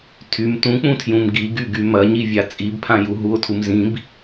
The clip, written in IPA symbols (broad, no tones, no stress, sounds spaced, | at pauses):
tʰ y m t ũ k͡p ũ tʰ j ũ m ɡ i ɡ y ɡ y m ɐ ɲ i vʲ a t͡sʼ i b pʰ ã j u ɦ u o̯ tʰ u m z ĩ b